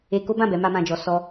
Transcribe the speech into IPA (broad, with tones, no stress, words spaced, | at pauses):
e˧ko˦bã˦˨ bɛ˨˦ma˦mã˧d͡ʒɔ˧ sɔ˦